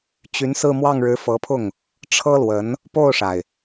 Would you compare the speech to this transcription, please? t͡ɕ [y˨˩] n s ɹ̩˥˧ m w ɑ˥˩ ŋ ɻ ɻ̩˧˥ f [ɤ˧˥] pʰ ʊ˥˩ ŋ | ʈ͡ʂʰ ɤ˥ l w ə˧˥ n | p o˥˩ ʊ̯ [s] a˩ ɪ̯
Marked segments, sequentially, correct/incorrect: incorrect: y˧˥, correct, incorrect: ʂ

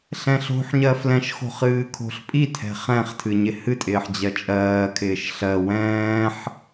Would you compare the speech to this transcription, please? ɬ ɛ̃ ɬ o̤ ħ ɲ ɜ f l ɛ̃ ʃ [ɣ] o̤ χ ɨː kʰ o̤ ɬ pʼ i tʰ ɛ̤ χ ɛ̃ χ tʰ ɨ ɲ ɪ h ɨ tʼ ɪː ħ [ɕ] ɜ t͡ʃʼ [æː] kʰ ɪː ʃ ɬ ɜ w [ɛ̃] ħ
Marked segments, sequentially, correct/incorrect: incorrect: x, incorrect: d͡ʑ, incorrect: ɜː, incorrect: ɛ̃ː

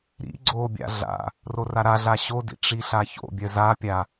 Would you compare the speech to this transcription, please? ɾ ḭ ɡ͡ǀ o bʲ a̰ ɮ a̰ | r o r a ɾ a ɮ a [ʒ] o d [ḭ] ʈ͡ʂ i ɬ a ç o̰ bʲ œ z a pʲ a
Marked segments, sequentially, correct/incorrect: incorrect: ɕ, correct

